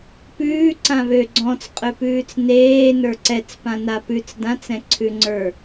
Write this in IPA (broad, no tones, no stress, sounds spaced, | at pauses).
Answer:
p ʉː ǀ ã β ø ɡ͡ǀ ɔ̃ t͡s qʼ ø p ʉː t͡s n eː n ə˞ ǀ ɛ t͡s p ã n a p ʉ t͡s d ã t͡s ɛ̃ ǀʰ ʉ ŋ͡ǀ ə˞